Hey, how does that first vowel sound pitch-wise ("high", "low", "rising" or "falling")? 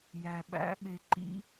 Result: low